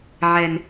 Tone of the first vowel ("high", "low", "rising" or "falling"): low